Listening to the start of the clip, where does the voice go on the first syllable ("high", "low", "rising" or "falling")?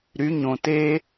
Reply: rising